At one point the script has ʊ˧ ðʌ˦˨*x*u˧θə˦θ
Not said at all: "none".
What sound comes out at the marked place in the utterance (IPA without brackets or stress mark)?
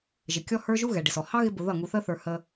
ŋ